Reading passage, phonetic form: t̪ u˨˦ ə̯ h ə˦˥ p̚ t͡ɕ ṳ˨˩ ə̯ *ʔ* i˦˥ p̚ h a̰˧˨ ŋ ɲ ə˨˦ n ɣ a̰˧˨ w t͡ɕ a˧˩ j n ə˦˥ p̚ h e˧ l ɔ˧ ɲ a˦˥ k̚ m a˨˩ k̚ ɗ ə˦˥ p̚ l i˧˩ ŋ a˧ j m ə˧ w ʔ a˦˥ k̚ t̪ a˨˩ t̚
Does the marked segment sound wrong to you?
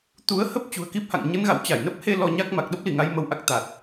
yes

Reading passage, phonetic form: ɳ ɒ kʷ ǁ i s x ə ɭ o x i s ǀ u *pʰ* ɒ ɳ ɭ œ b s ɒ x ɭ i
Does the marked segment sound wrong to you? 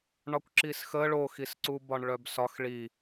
yes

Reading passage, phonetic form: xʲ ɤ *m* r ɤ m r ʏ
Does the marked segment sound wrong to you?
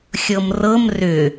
no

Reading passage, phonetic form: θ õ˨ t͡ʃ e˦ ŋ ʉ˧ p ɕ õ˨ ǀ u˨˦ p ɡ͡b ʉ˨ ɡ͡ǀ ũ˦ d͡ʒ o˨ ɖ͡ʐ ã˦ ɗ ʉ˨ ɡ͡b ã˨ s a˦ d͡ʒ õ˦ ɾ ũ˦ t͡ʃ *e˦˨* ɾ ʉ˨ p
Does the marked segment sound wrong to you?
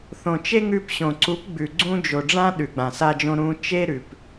yes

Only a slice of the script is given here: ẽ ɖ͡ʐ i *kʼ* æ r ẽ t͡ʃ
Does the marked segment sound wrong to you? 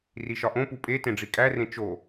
no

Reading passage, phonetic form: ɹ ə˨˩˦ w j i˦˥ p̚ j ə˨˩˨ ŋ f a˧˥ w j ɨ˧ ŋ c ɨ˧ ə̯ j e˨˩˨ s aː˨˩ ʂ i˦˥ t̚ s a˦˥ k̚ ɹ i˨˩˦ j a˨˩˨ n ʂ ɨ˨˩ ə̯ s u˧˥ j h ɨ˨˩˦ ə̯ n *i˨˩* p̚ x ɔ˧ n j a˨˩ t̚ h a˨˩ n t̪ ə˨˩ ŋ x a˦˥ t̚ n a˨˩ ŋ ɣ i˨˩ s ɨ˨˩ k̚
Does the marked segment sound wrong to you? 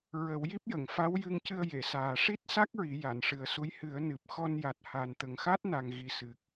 yes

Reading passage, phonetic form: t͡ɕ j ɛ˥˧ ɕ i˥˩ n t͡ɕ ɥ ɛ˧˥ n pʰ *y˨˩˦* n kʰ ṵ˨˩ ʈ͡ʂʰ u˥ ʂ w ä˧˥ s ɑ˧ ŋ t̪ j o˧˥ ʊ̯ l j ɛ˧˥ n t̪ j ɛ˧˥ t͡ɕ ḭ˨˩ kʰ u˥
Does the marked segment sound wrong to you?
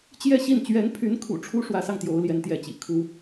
yes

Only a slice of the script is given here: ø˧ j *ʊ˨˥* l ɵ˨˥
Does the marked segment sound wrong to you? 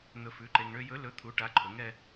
yes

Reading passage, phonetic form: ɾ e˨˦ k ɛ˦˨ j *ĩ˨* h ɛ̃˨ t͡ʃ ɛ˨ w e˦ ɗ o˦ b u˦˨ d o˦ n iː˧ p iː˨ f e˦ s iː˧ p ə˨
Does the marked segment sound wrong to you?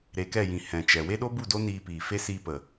no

